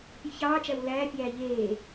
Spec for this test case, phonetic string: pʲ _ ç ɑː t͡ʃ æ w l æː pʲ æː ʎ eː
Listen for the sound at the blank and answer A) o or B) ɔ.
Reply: A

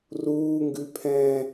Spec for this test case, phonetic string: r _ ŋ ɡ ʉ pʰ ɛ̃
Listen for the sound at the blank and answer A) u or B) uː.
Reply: B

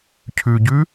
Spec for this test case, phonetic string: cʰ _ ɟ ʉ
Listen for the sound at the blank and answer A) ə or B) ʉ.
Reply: B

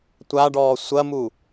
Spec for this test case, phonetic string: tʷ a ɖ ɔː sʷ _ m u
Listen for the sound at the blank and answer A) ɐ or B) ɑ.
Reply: A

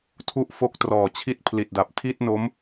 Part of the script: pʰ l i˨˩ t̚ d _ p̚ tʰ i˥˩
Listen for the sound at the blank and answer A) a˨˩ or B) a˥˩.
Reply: A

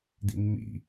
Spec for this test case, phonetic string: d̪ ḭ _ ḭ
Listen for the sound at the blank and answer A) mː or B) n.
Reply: A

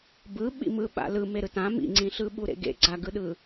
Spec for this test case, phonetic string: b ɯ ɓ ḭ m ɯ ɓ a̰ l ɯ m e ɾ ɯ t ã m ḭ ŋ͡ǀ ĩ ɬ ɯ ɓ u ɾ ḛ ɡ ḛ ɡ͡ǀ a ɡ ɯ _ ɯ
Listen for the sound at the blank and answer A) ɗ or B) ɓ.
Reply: A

